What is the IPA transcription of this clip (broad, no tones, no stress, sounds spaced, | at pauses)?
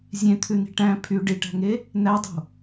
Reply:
zʲ ẽ t̪ʰ ʉ n i̤ ʈ æ̃ pʰ y ɖ i ʈ æ̤ ŋ e | n æ dˤ o̤